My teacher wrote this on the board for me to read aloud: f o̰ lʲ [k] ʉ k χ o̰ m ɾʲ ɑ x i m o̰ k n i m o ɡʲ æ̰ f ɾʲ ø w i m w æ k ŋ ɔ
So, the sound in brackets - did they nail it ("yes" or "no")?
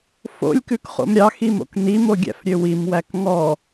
yes